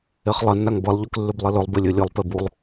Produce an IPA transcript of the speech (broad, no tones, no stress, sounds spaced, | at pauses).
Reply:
e χ lˠ ɐ nː a ŋ b ɐ lˠ ʎ ʉ k lː ʉ b lˠ i l ɵ lˠ b e lʲ ɵ lʲ ɨ lˠ p e b u lˠ